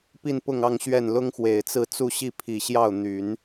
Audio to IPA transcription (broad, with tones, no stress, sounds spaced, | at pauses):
p i˥˧ n p ʊ˥˧ ŋ ɑ˥˧ ŋ ɕ ɥ ɛ˥˩ n l ʊ˥ ŋ x w e˨˩ ɪ̯ t͡s ɹ̩˥˧ t͡s u˥˧ ɕ i˥˩ pʰ i˨˩ ɕ j ɑ˥˩ ʊ̯ n̪ y˨˩˦ n